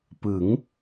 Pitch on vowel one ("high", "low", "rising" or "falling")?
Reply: rising